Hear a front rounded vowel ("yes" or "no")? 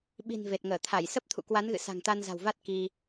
no